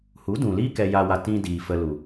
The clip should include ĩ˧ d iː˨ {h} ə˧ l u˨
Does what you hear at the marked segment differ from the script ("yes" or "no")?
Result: yes